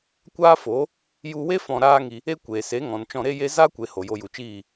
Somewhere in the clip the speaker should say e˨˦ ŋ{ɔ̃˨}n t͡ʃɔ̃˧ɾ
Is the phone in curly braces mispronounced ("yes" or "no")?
no